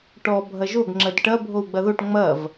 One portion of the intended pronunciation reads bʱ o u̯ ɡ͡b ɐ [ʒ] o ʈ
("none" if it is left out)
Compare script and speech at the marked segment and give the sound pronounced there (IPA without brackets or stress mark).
ð